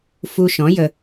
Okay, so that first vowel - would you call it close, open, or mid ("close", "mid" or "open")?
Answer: close